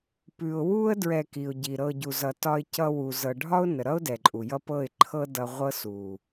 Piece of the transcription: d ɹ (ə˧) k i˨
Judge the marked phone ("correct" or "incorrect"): incorrect